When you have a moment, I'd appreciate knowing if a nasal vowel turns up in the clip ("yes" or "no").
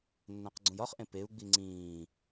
yes